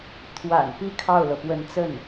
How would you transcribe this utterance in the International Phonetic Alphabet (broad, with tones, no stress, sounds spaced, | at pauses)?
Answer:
t̪ʰ w a̰˨˩ n p i˥ kʰ ɑ˥˩ ʊ̯ l ɤ˩ p w ə˧˥ n t͡s ə˥˩ n